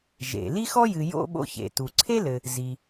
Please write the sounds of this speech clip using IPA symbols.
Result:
ʒ ḛ˩ l i˥ x ɔ˥ j ɨ˨ j o̰˥ ɓ o̰˦ ç ḛ˩ t u˩ ǀʰ e˥ l ɘ˨ | z i˩

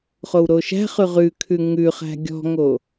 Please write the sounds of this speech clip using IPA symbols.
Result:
χ o w ɾ o ʃ æ̤ χ ʉ ʁ ʉ kʰ ʉ ŋ ʉ χ æ̤ ɡʲ ɔ̤ ŋ o

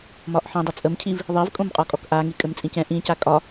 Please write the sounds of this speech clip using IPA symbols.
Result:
m ɒ ʔ ħ ĩ dˤ ʌ t͡sʼ ə m cʰ i v | ðˤ i v kʼ õ m qʼ ɔ kʼ ɔ k ʔ a ŋ i kʼ ɘ m t͡sʼ ĩ c ɛ̃ ʔ ĩ c a kʼ ɒ

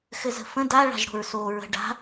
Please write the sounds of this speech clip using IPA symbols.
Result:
x ɘ z ə̤ f ə̃ d a ɭ a̤ ʒ ɽ o̤ ɹ s oː ɹ ə̤ ɖ a̤

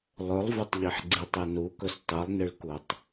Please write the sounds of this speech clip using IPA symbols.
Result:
lˠ ɵ lˠ v ɵ tˤ ʎ i ħ ɡ͡ǀ i tˤ ɨ n u k ɵ s tˤ ɨ lˠ n ɨ ɭ k u tˤ

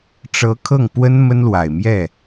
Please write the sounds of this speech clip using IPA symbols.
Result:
ʈ͡ʂ ɤ˧˥ kʰ ɤ˥˩ ŋ p w ə˥ n m ə˥ n l w a˨˩ ɪ̯ m j ɛ˥˩

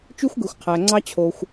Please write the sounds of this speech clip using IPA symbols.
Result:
t͡ʃ y˥ xʷ ɡ ɯ˩ xʷ qʰ æ˩ ŋ͡ǀ ɑ˥ t͡ɕʰ o˩ xʷ

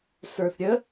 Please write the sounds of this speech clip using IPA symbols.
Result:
s ə˞ θ ɾʲ ə

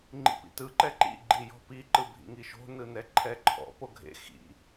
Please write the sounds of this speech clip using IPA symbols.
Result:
ŋ͡ǃ ḭ p ḭ t ɯ ǃ ɛ ǃ ḭ ɡ͡ǃ i j ɔ̤ p i ǃ ɯ bʱ ḭ ŋ i ʃ o̤ n ɯ n ɛ ǃʰ ɛ ǃʰ ɔ̰ p o ɡʱ ḛ x ḭ

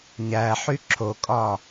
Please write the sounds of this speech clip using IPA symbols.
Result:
ɲ æ ħ y ǁʰ o kʼ ɒ

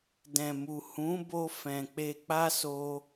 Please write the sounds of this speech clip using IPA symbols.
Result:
d ɛ̃˨ m u˨ h ũ˨˦ b o˧ f ɛ̃˨ k͡p e˧ k͡p a˦ s o˧

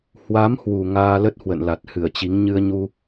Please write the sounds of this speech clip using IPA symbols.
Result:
h w a˨˦ m h w u˨˩ ŋ aː˧ l ə˦˥ t̚ h w ə̰˧˨ n l a˨˩ t̚ h ɨ˧˩ ə̯ t͡ɕ i˨˦ ŋ ɲ ɨ˧ ə̯ ɲ u˧

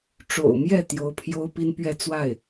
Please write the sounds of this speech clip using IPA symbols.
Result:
ʈ͡ʂ o̰˨˩ ʊ̯ m j ɛ˥˩ t̪ j o˧˥ ʊ̯ pʰ j o˥ ʊ̯ p i˥ n p ɥ ɛ˥˧ t͡s w a˥˩ ɪ̯

